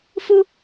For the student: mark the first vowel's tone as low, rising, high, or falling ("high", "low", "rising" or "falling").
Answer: high